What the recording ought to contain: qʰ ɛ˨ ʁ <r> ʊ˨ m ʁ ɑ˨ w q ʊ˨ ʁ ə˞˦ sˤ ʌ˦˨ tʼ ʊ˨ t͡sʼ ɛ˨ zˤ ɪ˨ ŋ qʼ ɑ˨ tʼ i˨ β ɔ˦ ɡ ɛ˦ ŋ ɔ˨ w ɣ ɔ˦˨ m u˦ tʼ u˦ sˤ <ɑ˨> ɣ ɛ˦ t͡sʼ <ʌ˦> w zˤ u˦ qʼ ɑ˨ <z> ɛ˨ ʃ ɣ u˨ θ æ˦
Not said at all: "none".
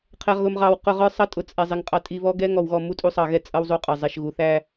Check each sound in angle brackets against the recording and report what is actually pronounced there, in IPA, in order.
ɣ, ɑ˨, ʌ˦, zˤ

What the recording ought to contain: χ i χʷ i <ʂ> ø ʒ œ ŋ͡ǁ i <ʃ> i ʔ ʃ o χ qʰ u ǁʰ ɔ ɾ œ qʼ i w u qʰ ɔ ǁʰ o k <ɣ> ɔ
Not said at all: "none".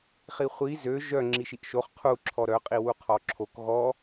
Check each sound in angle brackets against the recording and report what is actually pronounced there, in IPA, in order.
z, ʃ, ɣ

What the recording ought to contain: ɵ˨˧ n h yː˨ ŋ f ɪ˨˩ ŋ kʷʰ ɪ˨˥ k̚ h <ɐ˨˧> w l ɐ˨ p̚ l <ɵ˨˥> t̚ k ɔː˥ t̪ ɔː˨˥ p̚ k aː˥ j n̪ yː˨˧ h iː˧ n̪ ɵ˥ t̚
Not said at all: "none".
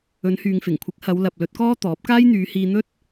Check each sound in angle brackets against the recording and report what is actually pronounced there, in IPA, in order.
ɐ˨˧, ɵ˨˥

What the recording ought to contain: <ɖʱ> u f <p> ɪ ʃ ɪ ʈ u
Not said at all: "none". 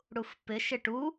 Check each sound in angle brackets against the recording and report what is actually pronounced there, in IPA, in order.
ɽ, p

